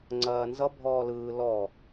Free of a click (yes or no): no